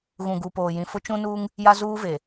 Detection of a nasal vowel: present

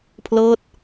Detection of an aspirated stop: present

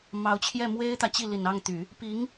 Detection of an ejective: absent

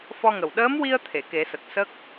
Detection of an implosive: present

